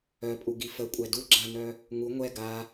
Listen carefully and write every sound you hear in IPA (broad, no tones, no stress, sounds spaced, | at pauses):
œ pʼ u ɡ i f ə kʷʼ ɛ d u ɡ͡ǁ a n œ | ŋ u ŋʷ ɛ ɡ a